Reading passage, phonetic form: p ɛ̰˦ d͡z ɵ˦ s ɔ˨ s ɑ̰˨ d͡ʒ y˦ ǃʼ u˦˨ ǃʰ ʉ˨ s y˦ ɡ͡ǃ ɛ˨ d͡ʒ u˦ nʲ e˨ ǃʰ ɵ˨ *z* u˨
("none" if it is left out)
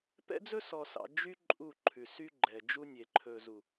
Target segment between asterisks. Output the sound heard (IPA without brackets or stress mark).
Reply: z